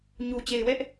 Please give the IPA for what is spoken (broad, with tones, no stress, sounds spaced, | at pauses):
ɲ u˨ t͡ɕ e˨ ɪ̯ w ɛ˦ ʔ